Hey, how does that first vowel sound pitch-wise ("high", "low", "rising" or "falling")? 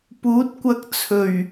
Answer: rising